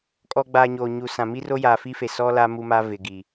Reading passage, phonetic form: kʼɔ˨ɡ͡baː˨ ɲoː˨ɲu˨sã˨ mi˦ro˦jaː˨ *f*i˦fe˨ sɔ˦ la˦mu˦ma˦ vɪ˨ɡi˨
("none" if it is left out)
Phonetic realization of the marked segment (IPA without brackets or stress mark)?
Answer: f